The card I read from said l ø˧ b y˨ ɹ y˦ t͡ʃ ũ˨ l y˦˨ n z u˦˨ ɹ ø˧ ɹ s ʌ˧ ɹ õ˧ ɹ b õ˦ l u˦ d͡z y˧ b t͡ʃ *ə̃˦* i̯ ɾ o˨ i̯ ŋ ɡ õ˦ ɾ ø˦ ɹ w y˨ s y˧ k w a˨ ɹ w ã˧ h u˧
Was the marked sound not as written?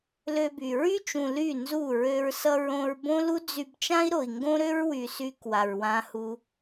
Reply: yes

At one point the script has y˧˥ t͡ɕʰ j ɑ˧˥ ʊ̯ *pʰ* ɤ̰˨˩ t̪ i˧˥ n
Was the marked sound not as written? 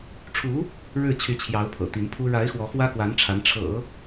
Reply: no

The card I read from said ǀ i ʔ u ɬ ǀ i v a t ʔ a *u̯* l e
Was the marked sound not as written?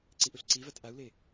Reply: no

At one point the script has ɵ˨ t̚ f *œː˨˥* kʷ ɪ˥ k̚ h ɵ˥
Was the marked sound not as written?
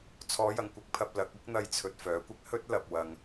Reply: no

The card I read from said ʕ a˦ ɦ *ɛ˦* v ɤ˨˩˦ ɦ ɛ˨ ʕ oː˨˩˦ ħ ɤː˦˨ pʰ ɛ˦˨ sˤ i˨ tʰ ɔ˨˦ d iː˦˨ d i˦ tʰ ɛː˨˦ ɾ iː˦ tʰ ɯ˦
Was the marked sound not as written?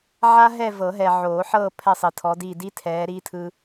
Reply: yes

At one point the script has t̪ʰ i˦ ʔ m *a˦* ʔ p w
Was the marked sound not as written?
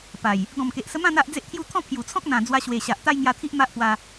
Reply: no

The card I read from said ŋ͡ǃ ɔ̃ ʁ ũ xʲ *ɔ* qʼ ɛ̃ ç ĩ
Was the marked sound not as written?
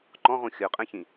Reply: yes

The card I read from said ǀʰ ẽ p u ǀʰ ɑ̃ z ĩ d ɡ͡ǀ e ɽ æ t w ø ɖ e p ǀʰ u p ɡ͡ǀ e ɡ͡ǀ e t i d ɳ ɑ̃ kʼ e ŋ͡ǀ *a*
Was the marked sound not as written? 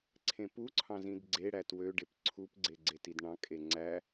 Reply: yes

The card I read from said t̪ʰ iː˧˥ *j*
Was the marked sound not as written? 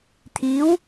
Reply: yes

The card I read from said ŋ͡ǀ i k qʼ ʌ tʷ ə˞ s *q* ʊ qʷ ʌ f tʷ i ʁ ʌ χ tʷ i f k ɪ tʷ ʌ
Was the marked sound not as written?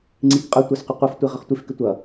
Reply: no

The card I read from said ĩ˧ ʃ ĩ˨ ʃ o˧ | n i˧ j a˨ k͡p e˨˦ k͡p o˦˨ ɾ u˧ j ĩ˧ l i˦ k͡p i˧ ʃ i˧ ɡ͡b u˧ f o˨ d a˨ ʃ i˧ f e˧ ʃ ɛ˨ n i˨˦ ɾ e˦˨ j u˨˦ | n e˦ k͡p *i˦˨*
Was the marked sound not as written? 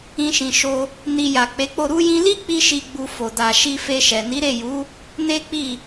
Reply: no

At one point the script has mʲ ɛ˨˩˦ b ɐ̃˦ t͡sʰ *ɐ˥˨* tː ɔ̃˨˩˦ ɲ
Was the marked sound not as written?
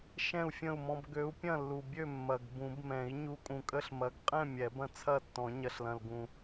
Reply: no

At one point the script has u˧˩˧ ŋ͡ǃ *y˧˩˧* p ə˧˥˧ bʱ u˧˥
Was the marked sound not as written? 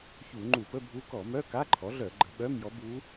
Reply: yes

